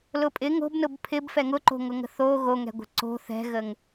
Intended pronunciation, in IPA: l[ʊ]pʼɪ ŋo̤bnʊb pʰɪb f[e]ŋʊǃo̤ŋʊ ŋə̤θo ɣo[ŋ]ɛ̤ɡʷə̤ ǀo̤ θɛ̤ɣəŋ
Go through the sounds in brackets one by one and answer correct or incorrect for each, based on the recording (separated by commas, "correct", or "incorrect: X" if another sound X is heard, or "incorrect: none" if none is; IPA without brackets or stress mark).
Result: correct, incorrect: ɛ, correct